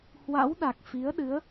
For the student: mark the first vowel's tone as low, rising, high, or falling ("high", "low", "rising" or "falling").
rising